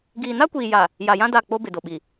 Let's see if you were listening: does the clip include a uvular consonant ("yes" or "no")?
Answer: no